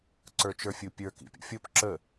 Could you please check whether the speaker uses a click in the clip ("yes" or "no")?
yes